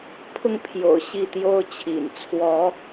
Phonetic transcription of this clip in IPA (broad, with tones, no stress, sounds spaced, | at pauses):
pʰ ʊ˥˨ ŋ pʰ j o̰˨˩ ʊ̯ ɕ i˥˨ t̪ j o˦ ʊ̯ t͡ɕʰ ḭ˨˩ n t͡sʰ w ɔ˨˦